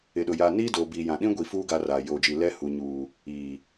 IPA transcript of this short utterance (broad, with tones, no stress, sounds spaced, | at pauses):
ɪ˨ ɗ ʊ˨ j a˨ n iː˦ d o˨ b iː˨ j ã˨ ɗ ĩ˦ ɡʷ i˨ f uː˦ ɡ a˦ r a˨ j oː˨ d͡ʒ i˨ l ɛ˦ h u˨ ɲ uː˨ | iː˨